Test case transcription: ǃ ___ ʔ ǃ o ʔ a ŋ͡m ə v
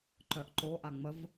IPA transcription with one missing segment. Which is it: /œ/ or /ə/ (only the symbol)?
œ